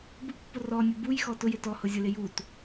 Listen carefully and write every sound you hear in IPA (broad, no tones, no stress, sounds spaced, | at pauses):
b u pː ʊ r ɔ nʲ ʊ b u j x ɔ t ʊ j ɪ t ɔ h ʊ zʲ ʊ l ɪ j u t